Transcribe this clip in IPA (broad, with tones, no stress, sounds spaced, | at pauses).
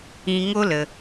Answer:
ĩ˧ ŋ o˦ l ə˧